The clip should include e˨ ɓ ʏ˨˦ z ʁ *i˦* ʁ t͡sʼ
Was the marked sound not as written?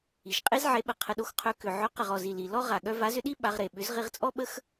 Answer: yes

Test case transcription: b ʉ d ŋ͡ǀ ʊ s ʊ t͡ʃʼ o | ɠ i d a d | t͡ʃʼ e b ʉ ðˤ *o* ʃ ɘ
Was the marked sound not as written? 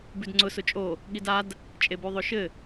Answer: no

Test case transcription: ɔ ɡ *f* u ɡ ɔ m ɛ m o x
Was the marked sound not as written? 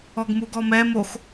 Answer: yes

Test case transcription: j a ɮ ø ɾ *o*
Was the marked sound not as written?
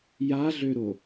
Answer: no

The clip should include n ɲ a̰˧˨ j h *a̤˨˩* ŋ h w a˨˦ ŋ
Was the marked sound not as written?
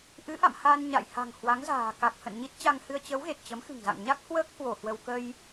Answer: no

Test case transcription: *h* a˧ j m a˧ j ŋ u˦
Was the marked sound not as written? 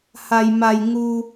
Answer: no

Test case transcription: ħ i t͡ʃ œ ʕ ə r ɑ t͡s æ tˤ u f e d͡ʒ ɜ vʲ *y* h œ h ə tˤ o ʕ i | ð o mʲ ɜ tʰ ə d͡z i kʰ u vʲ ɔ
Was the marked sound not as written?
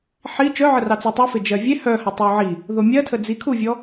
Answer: yes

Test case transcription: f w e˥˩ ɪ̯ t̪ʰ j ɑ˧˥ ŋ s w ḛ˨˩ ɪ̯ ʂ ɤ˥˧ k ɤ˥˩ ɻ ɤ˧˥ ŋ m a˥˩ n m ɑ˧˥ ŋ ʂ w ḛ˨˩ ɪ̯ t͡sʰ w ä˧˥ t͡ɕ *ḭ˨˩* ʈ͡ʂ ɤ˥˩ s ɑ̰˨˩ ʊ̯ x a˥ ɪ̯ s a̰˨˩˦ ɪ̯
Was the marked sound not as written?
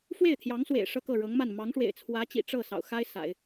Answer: no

